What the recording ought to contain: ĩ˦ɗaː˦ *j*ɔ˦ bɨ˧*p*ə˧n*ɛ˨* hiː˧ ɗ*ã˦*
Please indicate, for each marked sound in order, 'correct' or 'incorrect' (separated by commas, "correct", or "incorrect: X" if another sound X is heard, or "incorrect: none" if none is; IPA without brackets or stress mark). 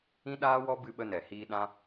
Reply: incorrect: w, incorrect: ɓ, correct, correct